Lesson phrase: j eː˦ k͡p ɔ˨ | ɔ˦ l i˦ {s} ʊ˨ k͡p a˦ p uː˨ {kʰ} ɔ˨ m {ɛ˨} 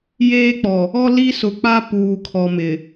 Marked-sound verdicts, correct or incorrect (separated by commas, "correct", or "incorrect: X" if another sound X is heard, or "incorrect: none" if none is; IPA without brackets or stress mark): correct, correct, incorrect: ɪ˨